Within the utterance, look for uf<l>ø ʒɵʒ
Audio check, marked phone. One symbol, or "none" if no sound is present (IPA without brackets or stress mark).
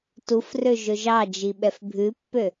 r